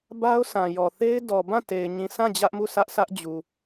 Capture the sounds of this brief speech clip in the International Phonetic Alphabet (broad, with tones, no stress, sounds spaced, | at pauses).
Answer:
b a˦ ʊ̯ s ã˨ j ɔ˨ θ e˦ ɪ̯ d ɔ˨ b ã˦˨ t e˨ ɪ̯ ɲ ĩ˨ s ã˦˨ d͡ʑ ä˦ ʔ m u˦˨ sʰ ä˦ ʔ s ä˦ ʔ d͡ʑ u˨